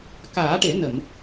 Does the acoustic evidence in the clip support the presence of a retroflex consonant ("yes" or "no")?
yes